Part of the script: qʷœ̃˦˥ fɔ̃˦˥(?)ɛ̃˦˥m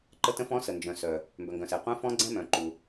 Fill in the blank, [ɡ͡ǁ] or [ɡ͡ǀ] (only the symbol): ɡ͡ǀ